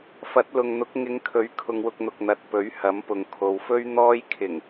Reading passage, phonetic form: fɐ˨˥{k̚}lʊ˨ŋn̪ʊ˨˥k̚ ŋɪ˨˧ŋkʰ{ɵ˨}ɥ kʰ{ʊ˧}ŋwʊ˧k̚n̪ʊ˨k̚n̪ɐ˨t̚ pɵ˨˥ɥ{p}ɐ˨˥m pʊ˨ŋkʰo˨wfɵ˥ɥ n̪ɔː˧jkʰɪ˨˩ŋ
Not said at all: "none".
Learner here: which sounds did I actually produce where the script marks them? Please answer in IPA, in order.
t̚, ɵ˨, ʊ˧, h

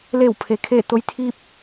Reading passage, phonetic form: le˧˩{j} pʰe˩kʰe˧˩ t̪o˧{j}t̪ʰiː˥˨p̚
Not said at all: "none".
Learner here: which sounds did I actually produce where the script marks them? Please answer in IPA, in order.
w, j

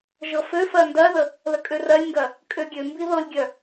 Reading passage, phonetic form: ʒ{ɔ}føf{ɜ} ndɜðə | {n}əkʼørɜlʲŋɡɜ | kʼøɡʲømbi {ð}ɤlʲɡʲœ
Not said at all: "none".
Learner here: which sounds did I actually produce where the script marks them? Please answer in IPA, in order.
ɤ, ɜ, l, ð

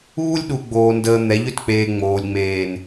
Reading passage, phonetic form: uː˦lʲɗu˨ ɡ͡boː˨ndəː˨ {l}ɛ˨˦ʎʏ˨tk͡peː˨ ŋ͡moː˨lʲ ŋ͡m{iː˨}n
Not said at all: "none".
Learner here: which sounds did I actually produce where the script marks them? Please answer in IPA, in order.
n̪, eː˨

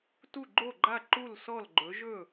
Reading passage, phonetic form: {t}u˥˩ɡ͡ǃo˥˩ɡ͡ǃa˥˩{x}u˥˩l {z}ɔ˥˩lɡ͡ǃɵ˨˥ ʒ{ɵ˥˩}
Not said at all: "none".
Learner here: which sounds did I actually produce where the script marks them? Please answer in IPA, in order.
t, ǃ, s, ɵ˥˩

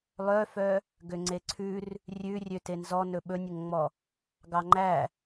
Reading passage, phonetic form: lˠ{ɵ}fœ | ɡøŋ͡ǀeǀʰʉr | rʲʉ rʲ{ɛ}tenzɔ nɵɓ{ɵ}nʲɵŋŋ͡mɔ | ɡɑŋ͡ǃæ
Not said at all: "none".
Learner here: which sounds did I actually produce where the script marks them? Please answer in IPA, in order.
œ, ø, ɵ

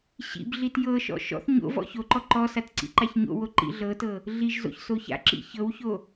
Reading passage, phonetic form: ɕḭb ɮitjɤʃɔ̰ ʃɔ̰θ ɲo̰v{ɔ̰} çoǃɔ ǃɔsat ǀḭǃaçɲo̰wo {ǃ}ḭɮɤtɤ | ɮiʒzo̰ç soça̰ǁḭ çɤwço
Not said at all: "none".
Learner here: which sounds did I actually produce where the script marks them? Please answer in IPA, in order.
ɔ̰, ǃ

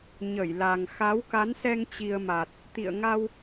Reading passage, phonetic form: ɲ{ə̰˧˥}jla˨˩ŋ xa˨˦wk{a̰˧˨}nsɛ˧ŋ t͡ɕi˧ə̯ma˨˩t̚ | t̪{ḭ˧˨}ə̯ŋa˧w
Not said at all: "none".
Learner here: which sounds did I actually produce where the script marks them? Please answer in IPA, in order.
ə˧˩, a˨˦, ḭ˧˨

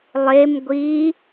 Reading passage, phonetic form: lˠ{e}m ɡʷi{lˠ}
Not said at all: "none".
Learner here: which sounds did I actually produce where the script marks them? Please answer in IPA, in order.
e, none

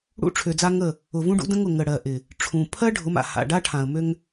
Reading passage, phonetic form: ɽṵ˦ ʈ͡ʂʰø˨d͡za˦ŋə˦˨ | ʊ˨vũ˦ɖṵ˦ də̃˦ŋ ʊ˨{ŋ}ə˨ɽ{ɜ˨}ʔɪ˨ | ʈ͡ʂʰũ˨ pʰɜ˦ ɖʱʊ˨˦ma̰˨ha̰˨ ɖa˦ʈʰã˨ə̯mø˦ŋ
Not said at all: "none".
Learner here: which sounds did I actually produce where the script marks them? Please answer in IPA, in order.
ŋ, ɜ˨

